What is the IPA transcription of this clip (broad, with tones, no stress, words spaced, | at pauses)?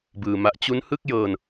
bɯː˧ma˦˥ʔ t͡ɕu˦˥nhɯ˥˩k̚jɤː˧n